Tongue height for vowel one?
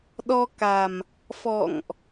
mid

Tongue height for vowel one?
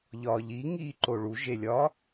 low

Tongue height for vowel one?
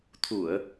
high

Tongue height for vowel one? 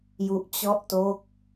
high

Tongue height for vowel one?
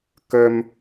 mid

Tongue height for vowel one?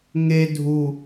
mid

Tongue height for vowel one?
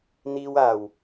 high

